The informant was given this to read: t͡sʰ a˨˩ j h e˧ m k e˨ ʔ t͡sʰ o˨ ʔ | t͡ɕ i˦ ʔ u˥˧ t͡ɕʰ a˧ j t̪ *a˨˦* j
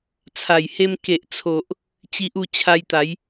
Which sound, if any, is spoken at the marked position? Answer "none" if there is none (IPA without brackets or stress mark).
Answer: a˨˦